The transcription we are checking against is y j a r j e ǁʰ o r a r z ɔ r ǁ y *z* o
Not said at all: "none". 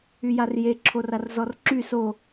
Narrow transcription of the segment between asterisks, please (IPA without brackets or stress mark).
s